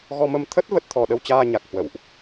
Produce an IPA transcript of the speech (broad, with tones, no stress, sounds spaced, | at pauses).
ɣ ɔ˧ m ə˧ m t̪ʰ ə˦˥ t̚ v ə˦˥ t̚ t̪ʰ ɔ˧ ɗ ə˧ w t͡ɕ aː˧ ɲ a˨˩ k̚ h w ə̰˧˨ w ʔ